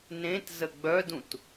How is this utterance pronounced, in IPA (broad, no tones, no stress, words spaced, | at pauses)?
nẽt zəɡ͡bœdũt